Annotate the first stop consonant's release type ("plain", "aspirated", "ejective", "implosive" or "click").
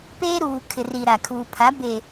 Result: plain